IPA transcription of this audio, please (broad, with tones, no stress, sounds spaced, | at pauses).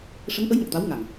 ʂ ə˧˥ ŋ ʔ ə˧˥ j ŋ ə˨˩ k̚ t̪ a˧˥ w ŋ a˨˩ ŋ